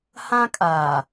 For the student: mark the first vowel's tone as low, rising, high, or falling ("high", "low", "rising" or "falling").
high